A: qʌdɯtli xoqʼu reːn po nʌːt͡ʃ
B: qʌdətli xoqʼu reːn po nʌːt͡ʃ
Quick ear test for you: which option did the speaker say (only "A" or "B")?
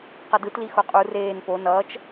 A